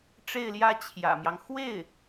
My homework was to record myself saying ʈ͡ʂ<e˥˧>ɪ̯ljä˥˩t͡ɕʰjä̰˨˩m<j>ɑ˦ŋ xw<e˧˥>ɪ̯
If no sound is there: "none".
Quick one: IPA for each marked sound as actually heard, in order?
e˥˧, j, e˥˩

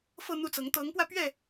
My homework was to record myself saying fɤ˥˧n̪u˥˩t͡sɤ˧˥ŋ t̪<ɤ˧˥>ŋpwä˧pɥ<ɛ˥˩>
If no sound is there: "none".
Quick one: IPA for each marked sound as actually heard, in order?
ɤ˧˥, ɛ˥˩

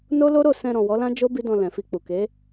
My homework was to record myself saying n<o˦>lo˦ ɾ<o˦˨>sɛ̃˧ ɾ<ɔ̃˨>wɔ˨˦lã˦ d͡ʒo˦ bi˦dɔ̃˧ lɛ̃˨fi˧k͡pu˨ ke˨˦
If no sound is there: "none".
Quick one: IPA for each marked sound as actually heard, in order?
o˦, o˦˨, ɔ̃˨

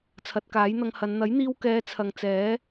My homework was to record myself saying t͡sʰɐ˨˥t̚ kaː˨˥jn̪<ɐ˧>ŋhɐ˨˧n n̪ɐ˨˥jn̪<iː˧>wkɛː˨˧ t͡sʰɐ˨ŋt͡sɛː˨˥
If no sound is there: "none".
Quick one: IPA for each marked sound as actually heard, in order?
ɐ˧, iː˧

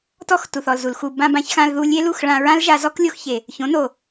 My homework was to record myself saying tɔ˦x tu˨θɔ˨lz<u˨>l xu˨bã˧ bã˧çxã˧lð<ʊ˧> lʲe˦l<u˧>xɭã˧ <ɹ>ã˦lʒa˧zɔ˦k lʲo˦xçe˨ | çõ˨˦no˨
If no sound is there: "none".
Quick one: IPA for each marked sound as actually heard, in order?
u˨, u˧, u˦˨, ɹ

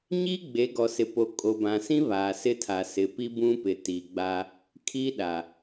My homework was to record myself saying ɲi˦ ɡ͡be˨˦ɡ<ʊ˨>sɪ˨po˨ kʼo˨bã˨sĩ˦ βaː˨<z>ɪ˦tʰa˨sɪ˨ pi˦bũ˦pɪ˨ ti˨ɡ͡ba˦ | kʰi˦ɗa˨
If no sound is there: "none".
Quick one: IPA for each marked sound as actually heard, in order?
ɔ˨, s

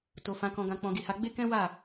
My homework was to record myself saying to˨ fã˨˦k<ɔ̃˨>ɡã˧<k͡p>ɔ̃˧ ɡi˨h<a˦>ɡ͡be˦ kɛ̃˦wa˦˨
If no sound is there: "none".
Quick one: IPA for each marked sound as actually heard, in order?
ɔ̃˧, k͡p, a˧

